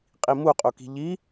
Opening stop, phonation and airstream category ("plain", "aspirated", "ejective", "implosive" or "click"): ejective